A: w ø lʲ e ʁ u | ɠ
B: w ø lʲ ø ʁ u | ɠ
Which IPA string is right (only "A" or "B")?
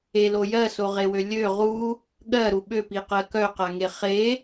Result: B